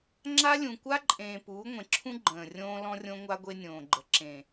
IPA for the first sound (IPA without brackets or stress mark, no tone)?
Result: ŋ͡ǁ